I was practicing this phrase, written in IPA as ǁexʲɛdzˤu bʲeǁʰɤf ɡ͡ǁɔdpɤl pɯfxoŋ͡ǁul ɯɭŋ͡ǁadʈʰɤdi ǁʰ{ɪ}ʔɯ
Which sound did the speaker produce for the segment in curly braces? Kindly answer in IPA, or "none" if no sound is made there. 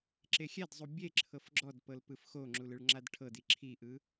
i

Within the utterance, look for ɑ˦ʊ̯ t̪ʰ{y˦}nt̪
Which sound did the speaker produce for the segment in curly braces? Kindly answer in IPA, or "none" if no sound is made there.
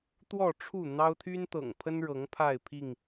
y˦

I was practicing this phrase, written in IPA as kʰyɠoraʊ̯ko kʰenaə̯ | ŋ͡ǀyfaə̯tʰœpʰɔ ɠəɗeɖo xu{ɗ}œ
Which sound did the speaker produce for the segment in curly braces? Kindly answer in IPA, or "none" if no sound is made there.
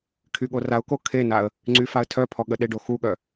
ɠ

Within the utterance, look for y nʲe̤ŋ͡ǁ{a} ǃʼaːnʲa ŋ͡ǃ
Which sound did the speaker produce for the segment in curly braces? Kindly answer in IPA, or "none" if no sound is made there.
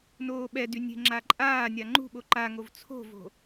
a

